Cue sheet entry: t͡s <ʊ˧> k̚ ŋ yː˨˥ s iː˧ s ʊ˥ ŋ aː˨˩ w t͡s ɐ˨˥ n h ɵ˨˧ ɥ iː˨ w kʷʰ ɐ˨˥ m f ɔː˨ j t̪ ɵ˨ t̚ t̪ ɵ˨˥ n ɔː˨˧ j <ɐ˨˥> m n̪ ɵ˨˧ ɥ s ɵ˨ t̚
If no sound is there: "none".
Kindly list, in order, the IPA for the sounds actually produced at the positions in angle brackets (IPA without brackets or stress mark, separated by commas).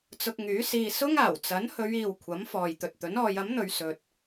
ʊ˧, ɐ˨˥